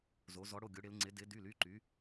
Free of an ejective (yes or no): yes